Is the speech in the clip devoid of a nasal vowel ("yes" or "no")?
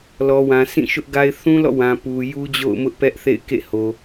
no